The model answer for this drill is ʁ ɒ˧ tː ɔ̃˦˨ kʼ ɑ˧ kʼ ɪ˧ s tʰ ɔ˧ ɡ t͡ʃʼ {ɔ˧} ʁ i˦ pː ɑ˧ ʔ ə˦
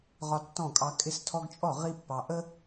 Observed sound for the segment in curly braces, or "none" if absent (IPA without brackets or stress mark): ɔ˦˨